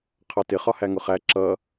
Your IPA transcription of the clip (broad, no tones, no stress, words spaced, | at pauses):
qʰɑtɪχɒ hæŋʊχæ ǁʌ